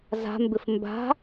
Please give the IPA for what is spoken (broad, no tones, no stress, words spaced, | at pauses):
za̤mbɪf mba̤